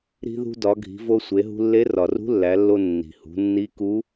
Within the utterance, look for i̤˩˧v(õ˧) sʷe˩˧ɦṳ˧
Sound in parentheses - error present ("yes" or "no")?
yes